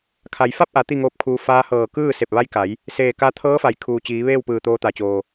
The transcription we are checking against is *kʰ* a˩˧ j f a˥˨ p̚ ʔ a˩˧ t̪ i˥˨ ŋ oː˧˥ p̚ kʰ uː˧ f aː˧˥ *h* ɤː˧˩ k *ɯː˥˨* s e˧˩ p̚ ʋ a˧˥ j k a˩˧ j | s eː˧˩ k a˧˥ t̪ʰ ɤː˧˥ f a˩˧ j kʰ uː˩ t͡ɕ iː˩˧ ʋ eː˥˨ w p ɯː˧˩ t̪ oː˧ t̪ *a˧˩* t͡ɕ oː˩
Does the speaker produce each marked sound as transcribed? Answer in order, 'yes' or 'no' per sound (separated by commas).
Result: yes, yes, yes, no